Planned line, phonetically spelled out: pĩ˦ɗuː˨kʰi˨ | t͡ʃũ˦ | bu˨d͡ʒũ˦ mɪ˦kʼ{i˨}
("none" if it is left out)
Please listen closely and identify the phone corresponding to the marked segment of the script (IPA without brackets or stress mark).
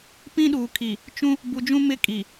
i˨